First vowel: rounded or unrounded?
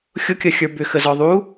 rounded